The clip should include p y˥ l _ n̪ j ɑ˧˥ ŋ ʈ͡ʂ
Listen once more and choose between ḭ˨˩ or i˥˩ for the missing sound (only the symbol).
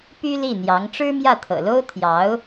i˥˩